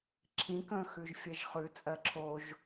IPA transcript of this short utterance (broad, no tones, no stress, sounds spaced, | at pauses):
ǁʰ ĩ k ə̃ː x ʉ ʒ fʲ ɜ ʒ χ ʉ t͡sʼ ɜ ǁʰ o ʒ